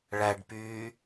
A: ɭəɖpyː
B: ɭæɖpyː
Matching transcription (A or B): B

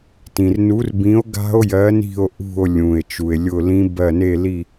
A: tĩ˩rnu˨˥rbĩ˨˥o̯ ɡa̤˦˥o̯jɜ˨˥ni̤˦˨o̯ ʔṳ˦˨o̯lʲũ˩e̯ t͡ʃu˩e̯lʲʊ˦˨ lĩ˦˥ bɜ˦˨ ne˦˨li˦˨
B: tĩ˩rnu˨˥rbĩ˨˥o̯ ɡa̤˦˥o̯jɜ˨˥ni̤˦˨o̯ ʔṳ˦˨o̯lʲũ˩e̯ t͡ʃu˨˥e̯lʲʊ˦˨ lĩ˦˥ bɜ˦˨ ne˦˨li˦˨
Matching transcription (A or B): A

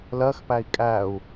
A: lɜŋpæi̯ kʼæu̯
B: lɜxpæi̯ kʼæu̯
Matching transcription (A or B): B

